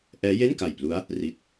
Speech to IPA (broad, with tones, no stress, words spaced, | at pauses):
ʔɛː˦˥je˥˩nka˨˩jplu˦˥a̯ | ri˦˥t̚